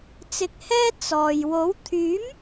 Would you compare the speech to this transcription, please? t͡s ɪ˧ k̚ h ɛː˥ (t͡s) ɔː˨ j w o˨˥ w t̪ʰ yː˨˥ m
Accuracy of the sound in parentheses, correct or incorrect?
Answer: correct